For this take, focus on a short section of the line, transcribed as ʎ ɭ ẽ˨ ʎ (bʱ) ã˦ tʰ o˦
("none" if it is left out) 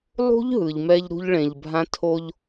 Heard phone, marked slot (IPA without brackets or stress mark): bʱ